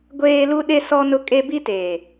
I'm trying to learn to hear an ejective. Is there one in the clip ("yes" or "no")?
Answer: yes